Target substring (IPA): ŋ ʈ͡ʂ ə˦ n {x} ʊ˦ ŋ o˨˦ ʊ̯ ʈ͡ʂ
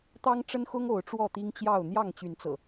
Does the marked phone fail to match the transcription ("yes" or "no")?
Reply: no